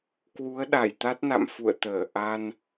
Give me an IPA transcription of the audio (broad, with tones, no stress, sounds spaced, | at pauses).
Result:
k w u˨˦ ə̯ ɗ a˧˩ j t̪ a˦˥ t̚ n a̰˧˨ m f ṵ˧˨ ə̯ t̪ əː˧˩ ʔ a˧ n